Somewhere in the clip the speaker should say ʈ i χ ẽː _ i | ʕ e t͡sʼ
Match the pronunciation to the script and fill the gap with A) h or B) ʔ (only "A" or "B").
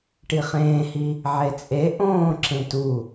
A